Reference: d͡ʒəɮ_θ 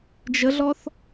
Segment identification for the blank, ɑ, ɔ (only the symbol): ɔ